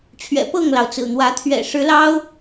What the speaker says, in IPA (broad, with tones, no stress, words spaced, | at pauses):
t͡ɕʰɥɛ̰˨˩pɤ˥˨ŋlɑ˩ʊ̯ t͡sɹ̩˨˩n̪wä˨˦t̪ʰɥɛ̰˨˩ ʂɻ̩˨˦lɑ˦ʊ̯